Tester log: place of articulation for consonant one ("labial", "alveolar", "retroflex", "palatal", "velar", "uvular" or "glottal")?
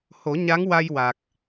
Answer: glottal